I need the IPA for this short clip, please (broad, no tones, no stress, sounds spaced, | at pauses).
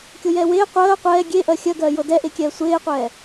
kʲ o j ɛː w eː qʷ ɜː qʷ ɛː ɡʲ e ʔ ɜ xʲ ɜ ɡ ɜː j ɤ d ɛ ʔ e kʲ ɛː sʷ eː qʷ ɛː